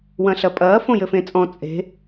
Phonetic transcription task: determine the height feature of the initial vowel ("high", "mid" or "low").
low